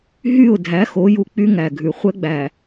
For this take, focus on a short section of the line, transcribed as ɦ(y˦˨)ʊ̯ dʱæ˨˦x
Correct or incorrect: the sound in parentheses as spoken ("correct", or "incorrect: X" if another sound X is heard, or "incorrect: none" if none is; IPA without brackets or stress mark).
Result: correct